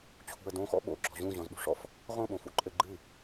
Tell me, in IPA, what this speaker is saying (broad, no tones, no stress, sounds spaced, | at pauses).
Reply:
t͡ɕʰ ṳ ə̯ d õ x ɔ̰ ɓ o̰ ɡ͡ǁ ɔ̤ ʑ ũ ʑ ɔ̃ z ɓ ṳ ʂ ɔ̰ f | ʁ õ ɓ õ f ṵ ǃʼ ɘ ɡ͡ǃ ɨ